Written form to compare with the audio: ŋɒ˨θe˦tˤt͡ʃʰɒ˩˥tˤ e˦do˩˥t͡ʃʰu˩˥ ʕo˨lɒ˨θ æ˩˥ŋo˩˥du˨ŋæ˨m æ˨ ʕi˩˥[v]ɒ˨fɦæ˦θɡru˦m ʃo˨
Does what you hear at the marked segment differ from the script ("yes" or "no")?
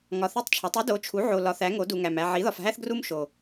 yes